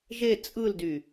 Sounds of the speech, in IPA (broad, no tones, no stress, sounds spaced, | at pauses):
ʒ e t͡sʼ ɯ l d y